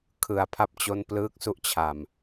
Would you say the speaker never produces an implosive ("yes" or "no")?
yes